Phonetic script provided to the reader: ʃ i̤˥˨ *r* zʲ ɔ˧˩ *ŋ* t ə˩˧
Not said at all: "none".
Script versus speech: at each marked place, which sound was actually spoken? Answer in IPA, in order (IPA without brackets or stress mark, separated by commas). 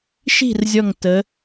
r, ŋ